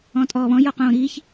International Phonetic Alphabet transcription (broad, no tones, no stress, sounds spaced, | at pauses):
ɔ̃ tʼ ɔː β ɔ̃ j ɔ q õː ɾ iː ç